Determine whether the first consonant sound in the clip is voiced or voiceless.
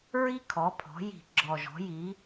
voiced